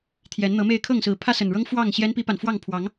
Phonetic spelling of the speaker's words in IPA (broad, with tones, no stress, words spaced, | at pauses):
t̪ʰjɛ˨˦nn̪ɤ˨˦me˥˨ɪ̯ kʰɤ˥˨ŋsɹ̩˨˦ pʰä˦sə˨˩nɻɤ˦ŋ fwɑ˥˨ŋ ɕjɛ˦npi˦pa˨nfwɑ˥˨ŋ pʰwɑ˨˦ŋ